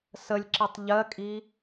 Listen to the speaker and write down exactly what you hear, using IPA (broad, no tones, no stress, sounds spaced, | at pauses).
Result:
s ə lʲ ǁ i tˤ ʎ ɜ kʼ i